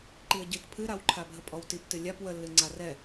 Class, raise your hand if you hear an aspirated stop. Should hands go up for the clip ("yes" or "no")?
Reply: yes